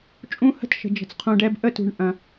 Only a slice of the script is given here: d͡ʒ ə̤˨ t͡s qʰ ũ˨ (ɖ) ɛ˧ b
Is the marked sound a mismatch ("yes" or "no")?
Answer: no